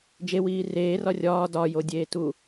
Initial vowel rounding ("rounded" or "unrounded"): unrounded